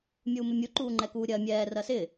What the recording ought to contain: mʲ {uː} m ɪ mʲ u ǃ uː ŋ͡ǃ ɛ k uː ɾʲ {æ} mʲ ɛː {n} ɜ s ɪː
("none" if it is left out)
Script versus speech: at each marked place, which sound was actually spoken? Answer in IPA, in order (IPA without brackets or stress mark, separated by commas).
uː, ɜ, r